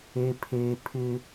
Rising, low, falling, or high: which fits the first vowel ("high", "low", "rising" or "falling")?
low